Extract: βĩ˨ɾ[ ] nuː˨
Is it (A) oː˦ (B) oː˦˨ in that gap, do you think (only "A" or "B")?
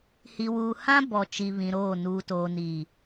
B